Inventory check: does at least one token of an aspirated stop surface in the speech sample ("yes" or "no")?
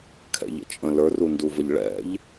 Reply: yes